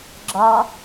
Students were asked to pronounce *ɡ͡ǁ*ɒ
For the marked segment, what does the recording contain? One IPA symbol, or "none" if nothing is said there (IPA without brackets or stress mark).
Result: ɡ͡ǁ